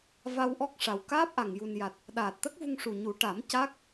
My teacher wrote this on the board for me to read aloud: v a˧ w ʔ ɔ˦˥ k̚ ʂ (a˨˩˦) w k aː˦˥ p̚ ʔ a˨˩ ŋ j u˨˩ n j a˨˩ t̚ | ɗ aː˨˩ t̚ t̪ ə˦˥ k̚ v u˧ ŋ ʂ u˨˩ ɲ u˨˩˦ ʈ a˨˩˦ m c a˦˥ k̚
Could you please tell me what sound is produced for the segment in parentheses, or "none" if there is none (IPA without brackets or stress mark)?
a˨˩